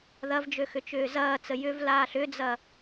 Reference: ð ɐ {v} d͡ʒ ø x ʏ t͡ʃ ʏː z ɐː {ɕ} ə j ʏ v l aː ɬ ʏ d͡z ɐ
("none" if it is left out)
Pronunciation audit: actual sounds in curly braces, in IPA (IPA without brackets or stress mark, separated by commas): v, t͡s